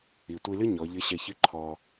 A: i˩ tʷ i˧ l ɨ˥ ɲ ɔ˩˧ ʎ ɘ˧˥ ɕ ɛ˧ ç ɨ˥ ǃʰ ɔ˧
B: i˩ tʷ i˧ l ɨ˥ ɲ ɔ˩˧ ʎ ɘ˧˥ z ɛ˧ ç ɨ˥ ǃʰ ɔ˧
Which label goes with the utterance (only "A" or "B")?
A